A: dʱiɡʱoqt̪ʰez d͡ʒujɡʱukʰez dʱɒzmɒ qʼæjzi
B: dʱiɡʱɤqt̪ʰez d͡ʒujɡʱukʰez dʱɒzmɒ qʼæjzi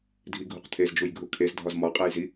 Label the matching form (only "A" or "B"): A